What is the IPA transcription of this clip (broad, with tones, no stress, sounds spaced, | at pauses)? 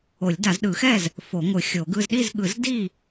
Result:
o˨˩˦ lʲ d a˨˩˦ z ɗ ɯ˨˩˦ x ɛ˥˨ z | f o˨˩˦ ŋʷ ɯ˨˩˦ xʲ o˨˩˦ ɡ ɯ˥˨ z ɗ i˥˨ z ɠ ɯ˨˩˦ z d i˥˨